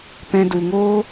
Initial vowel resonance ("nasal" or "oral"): nasal